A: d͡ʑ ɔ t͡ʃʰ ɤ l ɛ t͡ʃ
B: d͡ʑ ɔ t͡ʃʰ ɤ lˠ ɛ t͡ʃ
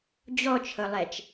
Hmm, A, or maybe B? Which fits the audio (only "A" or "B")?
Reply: B